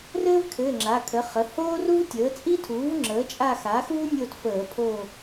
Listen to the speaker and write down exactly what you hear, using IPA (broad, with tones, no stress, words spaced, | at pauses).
rɘː˥vkʰɘː˩˧˩ ŋ͡ǁa˩˧˩ kʰə˩˥χə˩˧˩ hoː˥ru˥vtʲəː˩˥ t͡sʼi˥ tʰuː˩˥vŋ͡ǁəː˩˥ t͡ʃʼa˦˨xaː˩˥xuː˥nʲo˦˨t fəː˧˩˧pʰo˦˨